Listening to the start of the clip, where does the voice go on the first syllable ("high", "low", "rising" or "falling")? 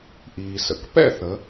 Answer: low